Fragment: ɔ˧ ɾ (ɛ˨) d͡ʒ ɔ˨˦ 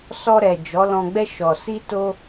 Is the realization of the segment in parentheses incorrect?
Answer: no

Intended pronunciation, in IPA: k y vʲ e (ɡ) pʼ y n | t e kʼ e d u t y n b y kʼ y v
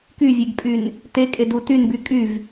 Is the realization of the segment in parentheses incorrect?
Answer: no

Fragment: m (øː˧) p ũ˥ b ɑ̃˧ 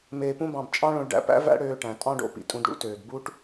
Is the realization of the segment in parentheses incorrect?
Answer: yes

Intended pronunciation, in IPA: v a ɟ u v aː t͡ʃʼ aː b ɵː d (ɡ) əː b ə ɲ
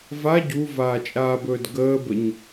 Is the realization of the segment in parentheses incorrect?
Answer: no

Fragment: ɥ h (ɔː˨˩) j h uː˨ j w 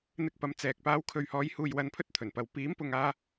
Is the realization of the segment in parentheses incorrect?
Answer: yes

